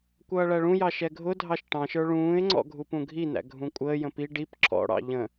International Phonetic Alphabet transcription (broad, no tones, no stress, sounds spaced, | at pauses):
kʷ ʌː ɭ æ ɭ ũ j ɑ ʃ ɛ ɡʱ ʊ dʱ ɑ ʃ ʈ ɑ̃ ʃ ə˞ ɭ ũː ɪ̯ ŋ͡ǀ ɔ̰ ɡʱ u p ũ ɡʱ i n æ̰ ɡʱ ũ kʷʼ əː j ə̃ p i ɖ i p ǁ ɔ̰ ɽ ɑ̰ ʎ ə̃